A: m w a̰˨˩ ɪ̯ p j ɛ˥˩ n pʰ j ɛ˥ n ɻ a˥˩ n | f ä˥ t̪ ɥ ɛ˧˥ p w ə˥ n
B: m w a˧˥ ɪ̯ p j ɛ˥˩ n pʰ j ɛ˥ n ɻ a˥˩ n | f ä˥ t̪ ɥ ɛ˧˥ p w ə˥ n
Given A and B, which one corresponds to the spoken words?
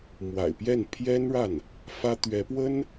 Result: A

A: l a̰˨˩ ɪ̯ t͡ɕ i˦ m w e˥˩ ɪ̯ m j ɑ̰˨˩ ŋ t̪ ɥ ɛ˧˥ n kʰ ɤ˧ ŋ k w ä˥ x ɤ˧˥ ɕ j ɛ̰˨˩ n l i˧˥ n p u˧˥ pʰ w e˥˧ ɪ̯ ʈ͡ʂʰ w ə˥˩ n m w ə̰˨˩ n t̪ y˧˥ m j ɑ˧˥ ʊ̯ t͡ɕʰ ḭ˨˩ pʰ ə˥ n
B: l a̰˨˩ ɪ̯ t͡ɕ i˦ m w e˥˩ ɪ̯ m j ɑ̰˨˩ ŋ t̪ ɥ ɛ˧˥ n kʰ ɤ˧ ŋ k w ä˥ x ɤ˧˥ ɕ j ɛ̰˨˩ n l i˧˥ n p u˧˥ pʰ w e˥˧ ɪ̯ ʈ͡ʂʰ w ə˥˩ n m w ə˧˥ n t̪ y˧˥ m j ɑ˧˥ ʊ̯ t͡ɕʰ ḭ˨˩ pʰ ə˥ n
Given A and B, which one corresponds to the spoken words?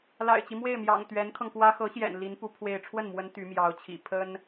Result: B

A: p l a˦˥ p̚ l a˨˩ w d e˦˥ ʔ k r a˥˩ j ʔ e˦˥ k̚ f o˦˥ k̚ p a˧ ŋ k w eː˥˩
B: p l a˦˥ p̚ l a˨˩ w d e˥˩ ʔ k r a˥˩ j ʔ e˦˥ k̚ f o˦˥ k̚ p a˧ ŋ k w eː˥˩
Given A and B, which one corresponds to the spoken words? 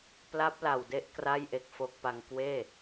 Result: A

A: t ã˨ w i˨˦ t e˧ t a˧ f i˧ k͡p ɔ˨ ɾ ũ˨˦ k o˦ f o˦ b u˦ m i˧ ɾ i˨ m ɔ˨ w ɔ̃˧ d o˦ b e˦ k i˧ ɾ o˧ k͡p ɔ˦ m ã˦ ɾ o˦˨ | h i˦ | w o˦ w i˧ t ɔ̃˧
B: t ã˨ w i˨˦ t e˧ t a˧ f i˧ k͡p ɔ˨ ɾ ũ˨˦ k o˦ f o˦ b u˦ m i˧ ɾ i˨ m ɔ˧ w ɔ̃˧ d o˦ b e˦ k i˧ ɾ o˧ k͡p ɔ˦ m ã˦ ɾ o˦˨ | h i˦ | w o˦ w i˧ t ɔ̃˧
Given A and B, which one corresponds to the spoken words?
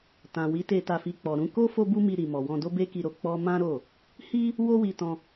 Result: A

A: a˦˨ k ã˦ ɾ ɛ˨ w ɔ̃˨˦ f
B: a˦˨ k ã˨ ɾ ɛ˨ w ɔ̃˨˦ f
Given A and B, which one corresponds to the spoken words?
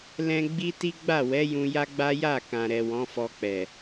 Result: B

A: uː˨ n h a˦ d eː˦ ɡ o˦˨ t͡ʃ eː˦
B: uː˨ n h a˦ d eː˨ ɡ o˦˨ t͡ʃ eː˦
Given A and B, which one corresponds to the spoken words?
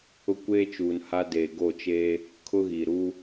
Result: B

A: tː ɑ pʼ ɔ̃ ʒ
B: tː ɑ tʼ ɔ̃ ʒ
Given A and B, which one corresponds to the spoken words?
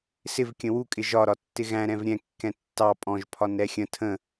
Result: A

